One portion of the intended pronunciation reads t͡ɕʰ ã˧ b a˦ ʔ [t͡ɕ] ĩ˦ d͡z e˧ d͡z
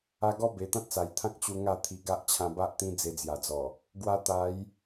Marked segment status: incorrect: t̪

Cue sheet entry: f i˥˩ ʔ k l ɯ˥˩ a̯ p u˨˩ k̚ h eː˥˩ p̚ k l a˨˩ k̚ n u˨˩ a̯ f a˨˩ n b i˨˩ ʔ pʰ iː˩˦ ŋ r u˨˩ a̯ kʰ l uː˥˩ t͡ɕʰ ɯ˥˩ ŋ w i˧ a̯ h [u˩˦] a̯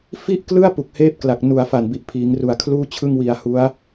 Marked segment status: incorrect: u˦˥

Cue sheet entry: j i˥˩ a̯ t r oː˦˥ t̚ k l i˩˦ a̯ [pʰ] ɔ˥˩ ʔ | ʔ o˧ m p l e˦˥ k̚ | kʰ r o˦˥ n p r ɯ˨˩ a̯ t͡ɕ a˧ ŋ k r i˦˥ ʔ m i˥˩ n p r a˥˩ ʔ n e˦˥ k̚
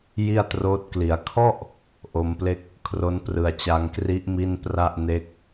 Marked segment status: incorrect: kʰ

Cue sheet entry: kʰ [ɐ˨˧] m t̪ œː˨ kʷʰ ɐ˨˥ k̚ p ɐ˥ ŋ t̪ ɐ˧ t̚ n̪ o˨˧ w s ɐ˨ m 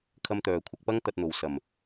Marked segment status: incorrect: ɐ˥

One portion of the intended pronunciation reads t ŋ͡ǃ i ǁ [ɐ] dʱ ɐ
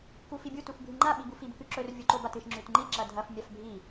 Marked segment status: correct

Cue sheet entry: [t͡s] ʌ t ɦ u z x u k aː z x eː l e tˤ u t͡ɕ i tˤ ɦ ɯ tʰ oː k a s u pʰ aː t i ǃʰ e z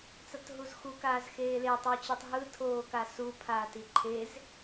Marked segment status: correct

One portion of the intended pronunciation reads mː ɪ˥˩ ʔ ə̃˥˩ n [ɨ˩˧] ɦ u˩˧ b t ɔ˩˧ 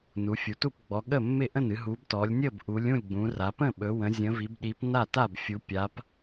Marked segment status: correct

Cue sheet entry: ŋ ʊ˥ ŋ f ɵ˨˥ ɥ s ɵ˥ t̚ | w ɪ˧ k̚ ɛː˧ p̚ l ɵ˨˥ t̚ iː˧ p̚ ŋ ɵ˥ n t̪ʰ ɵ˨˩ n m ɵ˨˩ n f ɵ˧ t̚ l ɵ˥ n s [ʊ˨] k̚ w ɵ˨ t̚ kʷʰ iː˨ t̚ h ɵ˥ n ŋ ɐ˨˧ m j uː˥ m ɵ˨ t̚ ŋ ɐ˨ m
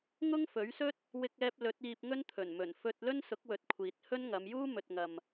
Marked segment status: incorrect: ʊ˨˥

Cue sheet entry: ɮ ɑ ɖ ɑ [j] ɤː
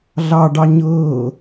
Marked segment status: incorrect: ɲ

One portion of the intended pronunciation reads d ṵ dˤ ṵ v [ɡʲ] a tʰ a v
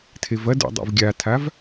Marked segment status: correct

